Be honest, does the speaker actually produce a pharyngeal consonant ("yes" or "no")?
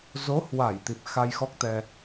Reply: no